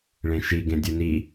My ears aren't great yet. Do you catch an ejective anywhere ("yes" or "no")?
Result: no